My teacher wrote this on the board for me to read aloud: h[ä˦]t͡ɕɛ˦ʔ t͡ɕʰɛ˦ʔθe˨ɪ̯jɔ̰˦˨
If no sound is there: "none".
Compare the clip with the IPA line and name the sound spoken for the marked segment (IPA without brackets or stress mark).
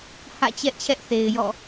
ä̰˦˨